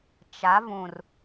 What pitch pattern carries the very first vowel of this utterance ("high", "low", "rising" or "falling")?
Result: rising